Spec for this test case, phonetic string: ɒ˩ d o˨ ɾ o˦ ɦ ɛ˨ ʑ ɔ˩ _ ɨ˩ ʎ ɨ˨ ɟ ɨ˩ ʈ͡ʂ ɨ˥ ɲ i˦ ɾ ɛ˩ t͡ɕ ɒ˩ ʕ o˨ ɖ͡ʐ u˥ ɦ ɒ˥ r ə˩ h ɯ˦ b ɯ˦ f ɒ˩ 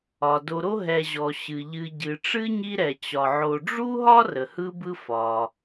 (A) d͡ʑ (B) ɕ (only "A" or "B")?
B